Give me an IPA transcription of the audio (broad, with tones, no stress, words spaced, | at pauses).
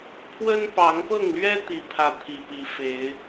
pʰwə˦npɑ˨˦ŋpɤ˥˨ŋlɥɛ˦ t̪i˥˨pʰä˥˨ t̪ʰi˨˩pi˨˦fe˨˦ɪ̯